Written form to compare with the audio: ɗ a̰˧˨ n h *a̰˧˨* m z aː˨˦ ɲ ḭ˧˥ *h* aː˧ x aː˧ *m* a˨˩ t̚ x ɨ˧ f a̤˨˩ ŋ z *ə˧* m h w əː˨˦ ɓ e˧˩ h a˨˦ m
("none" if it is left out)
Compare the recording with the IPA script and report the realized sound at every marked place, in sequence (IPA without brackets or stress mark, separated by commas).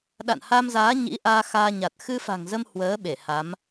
a˧, ʔ, ɲ, ə˧